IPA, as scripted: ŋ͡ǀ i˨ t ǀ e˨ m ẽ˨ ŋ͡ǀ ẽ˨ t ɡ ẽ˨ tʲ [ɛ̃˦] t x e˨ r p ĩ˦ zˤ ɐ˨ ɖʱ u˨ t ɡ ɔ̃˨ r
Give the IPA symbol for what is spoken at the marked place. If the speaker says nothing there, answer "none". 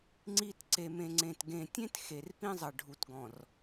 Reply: ẽ˦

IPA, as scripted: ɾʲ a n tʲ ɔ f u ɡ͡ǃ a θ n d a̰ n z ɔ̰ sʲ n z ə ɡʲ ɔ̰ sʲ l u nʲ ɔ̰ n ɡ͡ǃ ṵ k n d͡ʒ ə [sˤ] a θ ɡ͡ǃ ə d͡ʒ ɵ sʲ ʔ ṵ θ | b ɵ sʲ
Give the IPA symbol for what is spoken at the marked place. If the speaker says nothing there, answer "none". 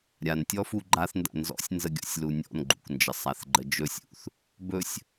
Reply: sˤ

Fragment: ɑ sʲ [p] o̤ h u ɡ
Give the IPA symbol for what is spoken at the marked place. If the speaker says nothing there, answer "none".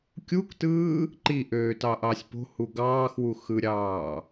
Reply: p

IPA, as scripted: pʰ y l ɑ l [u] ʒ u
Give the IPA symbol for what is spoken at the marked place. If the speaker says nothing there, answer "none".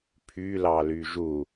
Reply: y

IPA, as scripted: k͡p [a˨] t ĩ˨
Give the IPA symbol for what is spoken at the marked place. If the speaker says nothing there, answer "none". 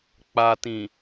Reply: a˨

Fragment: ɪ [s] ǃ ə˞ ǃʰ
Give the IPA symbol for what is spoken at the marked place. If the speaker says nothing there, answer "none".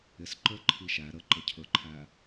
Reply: s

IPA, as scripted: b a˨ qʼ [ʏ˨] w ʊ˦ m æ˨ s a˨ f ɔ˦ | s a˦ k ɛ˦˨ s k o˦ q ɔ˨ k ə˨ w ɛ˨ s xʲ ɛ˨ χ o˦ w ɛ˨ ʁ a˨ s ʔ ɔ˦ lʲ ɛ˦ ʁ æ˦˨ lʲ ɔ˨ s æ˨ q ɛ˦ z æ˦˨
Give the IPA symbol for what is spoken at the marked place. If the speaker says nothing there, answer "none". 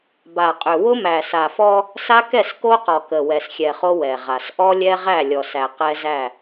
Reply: ʏ˨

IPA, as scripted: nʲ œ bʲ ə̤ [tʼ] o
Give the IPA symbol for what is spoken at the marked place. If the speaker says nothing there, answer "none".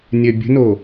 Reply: n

